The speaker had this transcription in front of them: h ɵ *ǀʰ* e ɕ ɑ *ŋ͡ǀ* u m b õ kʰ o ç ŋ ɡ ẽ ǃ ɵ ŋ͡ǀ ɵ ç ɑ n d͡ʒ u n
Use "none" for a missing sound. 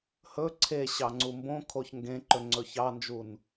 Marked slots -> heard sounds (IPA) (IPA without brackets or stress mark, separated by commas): ǀʰ, ŋ͡ǀ